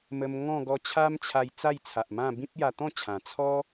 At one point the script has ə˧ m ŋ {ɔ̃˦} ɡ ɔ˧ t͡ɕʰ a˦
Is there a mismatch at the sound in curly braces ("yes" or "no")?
yes